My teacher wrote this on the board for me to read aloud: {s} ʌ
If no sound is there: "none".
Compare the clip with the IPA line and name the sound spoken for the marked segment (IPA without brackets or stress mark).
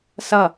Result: s